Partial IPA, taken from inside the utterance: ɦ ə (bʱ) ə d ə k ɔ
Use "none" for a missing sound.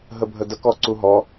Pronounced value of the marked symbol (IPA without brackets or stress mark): bʱ